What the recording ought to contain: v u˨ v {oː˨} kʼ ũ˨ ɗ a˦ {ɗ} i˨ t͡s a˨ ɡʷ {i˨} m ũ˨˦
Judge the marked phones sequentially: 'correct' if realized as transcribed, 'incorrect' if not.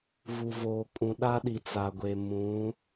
correct, correct, incorrect: e˨

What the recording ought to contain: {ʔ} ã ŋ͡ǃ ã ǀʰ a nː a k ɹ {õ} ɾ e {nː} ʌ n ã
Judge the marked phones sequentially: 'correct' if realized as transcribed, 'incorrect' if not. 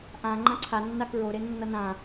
correct, incorrect: o, correct

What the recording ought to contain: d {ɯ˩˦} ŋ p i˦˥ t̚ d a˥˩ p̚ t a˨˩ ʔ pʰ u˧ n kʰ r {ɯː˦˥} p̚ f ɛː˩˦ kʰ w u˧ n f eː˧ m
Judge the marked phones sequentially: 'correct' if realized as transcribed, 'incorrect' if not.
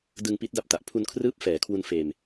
incorrect: ɯ˧, correct

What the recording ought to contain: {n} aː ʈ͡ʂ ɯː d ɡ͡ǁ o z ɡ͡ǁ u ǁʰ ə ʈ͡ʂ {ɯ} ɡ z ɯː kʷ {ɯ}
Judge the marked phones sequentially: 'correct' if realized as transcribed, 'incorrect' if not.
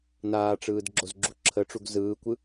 correct, incorrect: u, correct

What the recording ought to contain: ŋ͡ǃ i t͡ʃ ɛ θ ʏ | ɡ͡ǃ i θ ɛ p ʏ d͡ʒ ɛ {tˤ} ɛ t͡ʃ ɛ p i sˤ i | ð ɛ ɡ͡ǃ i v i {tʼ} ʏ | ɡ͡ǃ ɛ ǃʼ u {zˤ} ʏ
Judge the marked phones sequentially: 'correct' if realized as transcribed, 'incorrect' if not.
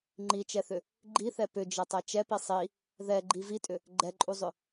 correct, correct, correct

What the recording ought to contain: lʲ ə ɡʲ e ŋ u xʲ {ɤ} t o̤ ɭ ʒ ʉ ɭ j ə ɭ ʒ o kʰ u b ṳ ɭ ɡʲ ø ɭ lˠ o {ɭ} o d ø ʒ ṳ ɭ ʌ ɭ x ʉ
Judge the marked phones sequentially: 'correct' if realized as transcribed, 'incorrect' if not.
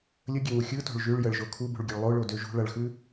incorrect: ɯ, correct

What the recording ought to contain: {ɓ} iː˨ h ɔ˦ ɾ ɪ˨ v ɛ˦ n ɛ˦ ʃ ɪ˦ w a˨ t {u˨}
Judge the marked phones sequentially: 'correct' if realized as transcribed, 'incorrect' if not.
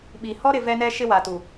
correct, correct

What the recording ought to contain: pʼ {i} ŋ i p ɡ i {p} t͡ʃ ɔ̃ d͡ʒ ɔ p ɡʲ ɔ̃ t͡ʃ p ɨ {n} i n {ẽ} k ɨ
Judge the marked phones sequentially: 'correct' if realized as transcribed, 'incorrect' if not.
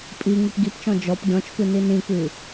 correct, correct, correct, incorrect: ĩ

